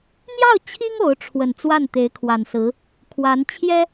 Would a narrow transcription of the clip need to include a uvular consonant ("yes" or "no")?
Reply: no